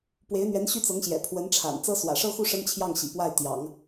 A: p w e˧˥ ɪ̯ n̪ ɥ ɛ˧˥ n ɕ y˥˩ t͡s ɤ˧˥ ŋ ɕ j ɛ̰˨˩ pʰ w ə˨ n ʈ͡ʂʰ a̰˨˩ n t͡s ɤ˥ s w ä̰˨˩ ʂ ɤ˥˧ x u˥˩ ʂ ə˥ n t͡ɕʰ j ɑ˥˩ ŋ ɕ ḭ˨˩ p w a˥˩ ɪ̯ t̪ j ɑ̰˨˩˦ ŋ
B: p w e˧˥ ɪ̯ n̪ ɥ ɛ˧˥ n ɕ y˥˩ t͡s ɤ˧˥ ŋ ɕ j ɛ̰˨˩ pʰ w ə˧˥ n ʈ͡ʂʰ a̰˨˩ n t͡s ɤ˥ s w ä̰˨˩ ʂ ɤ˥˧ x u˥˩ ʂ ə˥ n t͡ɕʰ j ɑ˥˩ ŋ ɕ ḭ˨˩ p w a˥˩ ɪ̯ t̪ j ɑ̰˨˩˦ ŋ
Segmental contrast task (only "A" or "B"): B